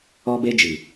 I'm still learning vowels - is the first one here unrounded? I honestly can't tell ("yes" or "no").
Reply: no